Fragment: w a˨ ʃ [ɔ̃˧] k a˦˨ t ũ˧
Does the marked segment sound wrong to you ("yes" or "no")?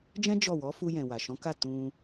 yes